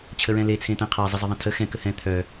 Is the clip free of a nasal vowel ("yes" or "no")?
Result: no